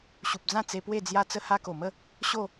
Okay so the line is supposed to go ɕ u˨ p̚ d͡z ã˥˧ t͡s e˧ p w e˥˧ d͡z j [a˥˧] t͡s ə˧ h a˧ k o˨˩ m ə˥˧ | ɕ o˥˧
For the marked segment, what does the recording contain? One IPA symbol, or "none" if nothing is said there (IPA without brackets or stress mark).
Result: a˧